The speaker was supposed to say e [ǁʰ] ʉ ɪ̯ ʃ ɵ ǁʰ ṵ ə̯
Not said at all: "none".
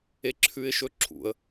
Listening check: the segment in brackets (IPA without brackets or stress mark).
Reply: ǁʰ